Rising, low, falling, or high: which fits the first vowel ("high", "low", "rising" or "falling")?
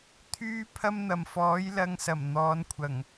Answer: high